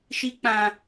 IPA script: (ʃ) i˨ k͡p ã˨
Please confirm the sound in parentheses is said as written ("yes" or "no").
yes